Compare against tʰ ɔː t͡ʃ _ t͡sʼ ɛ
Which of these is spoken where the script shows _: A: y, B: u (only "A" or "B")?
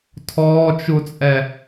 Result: B